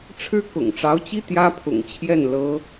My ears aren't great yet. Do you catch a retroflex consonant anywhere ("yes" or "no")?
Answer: yes